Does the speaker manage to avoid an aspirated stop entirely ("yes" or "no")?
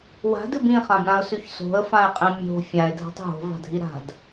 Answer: yes